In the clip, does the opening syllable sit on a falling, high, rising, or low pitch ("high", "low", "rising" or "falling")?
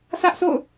high